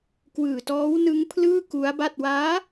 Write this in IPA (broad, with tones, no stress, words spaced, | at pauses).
kwɯː˨˩tɔː˦˥wnɯ˦˥ŋpʰlɯː˥˩ ku˦˥a̯ba˥˩t̚ waː˦˥